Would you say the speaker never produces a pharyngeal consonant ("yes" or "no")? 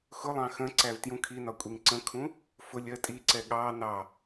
yes